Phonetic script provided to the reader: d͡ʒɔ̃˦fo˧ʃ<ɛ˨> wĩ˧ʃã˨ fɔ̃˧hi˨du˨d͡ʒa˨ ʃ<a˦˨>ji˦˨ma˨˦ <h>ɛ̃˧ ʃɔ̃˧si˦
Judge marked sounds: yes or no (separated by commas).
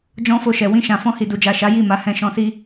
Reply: yes, no, yes